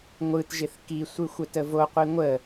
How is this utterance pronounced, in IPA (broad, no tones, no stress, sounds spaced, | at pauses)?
ŋʷ ɯ t ʒ ɪ θ k i sʷ ɯ xʷ ə t ə v o qʷ i ŋʷ ə